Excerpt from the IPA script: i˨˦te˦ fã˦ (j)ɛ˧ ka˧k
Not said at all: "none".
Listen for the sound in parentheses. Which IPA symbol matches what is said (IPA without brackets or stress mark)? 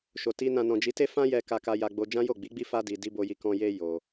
j